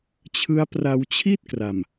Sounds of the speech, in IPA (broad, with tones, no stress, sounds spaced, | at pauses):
t͡ɕʰ ɯ˦˥ a̯ p r a˧ w t͡ɕʰ i˥˩ t̚ k r a˨˩ m